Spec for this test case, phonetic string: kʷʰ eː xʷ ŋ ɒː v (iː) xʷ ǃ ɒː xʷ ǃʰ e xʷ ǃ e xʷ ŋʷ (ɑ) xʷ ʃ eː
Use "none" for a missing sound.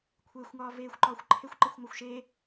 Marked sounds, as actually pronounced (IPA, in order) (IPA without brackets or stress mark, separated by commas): eː, a